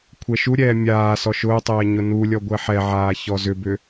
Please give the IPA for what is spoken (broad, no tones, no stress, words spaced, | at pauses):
kʷʰɛʃuɾʲɛː mʲaː sɔʃʊːtˤɛː ɲʊnulʲɔ ɡʷɛħɛʕaː çɔzʏbʏ